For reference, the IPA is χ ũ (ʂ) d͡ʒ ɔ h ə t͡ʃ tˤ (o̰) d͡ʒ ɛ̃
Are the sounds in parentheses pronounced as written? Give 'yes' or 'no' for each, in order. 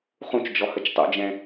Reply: no, yes

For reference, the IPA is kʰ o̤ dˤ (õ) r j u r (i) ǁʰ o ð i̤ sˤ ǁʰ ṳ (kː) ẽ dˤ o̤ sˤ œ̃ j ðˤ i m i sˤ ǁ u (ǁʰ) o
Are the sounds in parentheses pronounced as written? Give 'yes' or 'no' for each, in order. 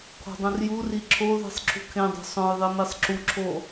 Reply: yes, yes, no, yes

